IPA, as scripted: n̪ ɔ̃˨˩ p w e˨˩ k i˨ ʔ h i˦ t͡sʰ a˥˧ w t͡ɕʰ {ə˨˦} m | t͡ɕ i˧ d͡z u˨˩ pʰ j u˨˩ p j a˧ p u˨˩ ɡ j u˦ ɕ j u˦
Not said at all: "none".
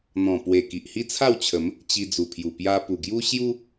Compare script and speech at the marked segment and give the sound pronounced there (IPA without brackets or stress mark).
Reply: ə˨˦